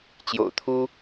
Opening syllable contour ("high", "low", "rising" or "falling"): low